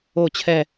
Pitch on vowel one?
falling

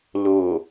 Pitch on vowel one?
low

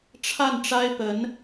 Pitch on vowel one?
falling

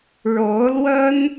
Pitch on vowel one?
rising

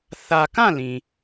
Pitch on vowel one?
low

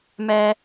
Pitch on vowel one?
high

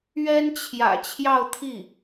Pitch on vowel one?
high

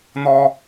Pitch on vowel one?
high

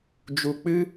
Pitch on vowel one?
low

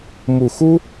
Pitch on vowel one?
low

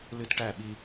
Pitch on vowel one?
high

